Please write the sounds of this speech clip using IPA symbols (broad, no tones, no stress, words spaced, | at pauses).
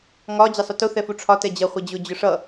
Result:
ŋɒ d͡ʑɛsˤʊtʊ θɛfuʈ͡ʂʰɒ tɛd͡ʑʌ χʷɛd͡ʑʊ d͡ʑʊʂʌ